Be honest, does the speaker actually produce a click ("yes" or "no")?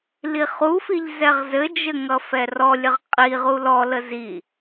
no